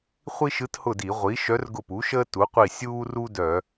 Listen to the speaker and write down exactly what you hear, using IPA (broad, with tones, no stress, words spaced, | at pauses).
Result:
χʷi˥ʃɯ˧˥thʊ˦˨di˧˩˧ ʁʷi˩˥ ʃœ˧˥rɡʊ˦˨pu˩˥ʃəː˥ tu˩˥qʷi˦˨ sʲuː˥ru˥ dœ˧˩˧